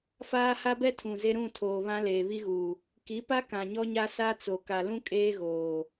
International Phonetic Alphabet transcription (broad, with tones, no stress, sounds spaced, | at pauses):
f aː˦ h a˦ b ɛ˦ tʰ ũ˨ z e˦ ɾ ũ˦˨ tʰ oː˨ β ã˦ l eː˨ β i˦ ɣ uː˨ | k i˨˦ p a˦ k ã˨ ɲ ɔ˦ ɲ a˦ s a˦ t͡s o˨ k a˨ l ũ˦ kʼ eː˦ ɣ oː˨